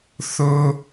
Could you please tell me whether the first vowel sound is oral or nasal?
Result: oral